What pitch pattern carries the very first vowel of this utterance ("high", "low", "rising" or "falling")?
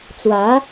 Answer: rising